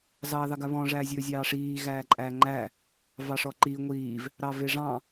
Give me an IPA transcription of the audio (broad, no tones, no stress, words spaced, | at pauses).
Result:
zɑːðɑɡaβɔ̃ ʐæːzʲɵːzʲɑːʂiː ɣæːǃʼæːŋ͡ǃæː | vɑʂɔǃiː ŋʷiːv | ɾɑveʐɑ̃